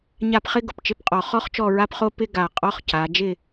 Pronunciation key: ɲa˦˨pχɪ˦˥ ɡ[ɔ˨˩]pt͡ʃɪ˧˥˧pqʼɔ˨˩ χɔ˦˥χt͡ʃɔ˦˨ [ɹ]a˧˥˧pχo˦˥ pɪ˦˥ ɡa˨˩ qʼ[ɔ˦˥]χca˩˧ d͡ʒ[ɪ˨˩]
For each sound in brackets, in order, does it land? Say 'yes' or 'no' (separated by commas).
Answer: no, yes, yes, no